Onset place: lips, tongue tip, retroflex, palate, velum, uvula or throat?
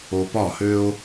lips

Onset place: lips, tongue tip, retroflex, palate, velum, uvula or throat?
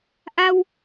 throat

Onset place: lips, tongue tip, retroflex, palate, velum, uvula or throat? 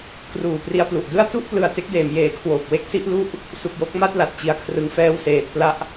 velum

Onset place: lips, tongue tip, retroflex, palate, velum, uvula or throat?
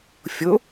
lips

